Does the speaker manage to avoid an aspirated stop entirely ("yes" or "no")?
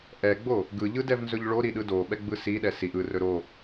yes